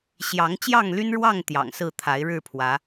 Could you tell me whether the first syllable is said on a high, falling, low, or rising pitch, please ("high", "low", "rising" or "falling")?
rising